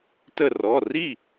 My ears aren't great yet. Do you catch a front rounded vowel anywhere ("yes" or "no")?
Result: no